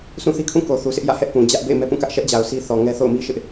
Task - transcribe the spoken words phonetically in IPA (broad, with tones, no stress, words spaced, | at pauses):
sũ˦˨θi˦kʰũ˦˨ ko˨θu˨sɪ˦ʔjä̰˦˨ hɛ˦ʔ pũ˨ d͡ʑä˦ʔbḛ˦˨ɪ̯ mɛ˦pũ˦˨kä˦ʔ ʃɛ˦ʔd͡ʑa˨ʊ̯ si˦θɔ˨ŋɛ˦ θo̰˦˨ʊ̯mi˦ʃɪ˦ʔ